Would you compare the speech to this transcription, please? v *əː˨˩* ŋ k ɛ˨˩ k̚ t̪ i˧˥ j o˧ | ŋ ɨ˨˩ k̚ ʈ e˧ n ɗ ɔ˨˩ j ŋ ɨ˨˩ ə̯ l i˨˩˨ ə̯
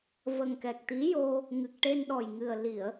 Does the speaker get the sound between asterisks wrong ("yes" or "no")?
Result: yes